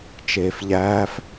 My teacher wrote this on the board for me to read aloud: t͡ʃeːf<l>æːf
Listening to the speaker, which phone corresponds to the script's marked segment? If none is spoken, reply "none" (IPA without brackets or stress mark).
ʎ